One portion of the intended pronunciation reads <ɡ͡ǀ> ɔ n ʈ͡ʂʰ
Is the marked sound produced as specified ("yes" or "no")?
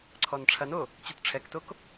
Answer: no